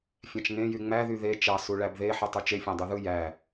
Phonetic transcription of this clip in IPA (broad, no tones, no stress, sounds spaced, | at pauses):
fʲ æ̃ t͡ʃ ŋ ẽ j y ŋ͡m æ ð y ð e t͡ʃ ɑ s u ɭ æ b ð e ħ ɯ tˤ y t͡ʃ e fʲ æ̃ dˤ y ð ɯ j æ